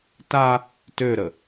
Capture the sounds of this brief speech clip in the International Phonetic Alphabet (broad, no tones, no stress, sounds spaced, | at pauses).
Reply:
t a | t ø ɾ ə